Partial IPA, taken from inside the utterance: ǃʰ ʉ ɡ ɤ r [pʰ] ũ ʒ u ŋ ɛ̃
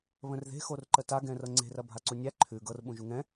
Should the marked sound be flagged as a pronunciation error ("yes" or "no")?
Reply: yes